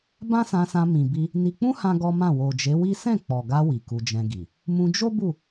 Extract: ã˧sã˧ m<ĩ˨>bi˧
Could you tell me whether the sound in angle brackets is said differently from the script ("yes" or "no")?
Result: no